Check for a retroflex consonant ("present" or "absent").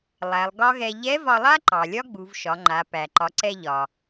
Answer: absent